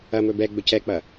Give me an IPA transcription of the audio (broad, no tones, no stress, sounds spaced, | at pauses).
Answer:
ɐ m ɵ b ɛ ɡ͡b ɵ c ɛ k͡p ɐ